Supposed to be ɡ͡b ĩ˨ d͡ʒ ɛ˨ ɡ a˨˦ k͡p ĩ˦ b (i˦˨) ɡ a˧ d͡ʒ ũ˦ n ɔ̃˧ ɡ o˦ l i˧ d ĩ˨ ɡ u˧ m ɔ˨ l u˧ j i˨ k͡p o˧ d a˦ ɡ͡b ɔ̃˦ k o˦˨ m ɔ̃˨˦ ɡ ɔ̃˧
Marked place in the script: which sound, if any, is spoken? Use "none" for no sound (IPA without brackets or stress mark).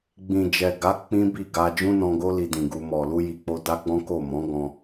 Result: i˦˨